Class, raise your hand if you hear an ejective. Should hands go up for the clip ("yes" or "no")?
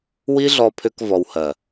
no